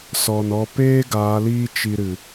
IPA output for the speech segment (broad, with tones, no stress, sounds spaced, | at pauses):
s ɔ˨ n ɔ˧ p eː˦ ɡ aː˨˦ l iː˦ t͡ʃ i˧ ɾ ɨ˨